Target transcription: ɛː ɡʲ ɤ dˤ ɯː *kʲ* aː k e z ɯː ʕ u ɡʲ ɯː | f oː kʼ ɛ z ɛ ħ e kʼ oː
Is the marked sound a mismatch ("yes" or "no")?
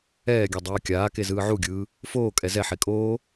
no